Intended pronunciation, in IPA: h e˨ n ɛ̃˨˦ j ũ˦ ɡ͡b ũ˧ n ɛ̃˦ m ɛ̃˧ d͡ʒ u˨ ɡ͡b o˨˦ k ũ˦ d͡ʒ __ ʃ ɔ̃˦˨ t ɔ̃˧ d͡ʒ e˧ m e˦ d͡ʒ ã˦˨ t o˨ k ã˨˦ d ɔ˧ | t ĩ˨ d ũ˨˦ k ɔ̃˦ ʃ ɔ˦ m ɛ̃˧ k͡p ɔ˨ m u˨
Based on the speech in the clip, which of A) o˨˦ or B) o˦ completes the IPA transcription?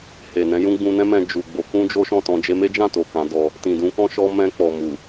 B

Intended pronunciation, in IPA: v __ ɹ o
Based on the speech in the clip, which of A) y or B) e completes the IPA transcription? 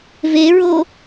B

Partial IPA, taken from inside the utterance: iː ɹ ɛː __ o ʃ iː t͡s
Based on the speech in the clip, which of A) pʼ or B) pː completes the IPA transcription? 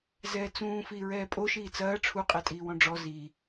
A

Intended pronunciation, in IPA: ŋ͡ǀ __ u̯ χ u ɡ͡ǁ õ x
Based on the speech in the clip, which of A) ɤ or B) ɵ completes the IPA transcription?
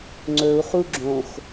B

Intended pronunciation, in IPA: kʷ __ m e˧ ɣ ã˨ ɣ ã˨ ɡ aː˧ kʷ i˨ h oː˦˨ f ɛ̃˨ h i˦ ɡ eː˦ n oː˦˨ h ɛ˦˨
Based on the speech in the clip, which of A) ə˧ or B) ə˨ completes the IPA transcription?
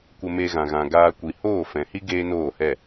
A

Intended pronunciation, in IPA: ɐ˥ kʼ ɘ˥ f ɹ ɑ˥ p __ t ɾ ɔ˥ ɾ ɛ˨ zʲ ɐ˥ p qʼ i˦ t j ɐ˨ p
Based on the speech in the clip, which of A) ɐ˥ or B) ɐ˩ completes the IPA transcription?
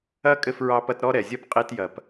A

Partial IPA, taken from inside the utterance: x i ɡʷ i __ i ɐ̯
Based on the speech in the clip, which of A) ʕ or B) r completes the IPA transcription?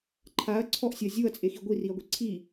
B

